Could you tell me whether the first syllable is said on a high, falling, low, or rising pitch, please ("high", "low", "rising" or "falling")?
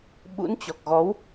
rising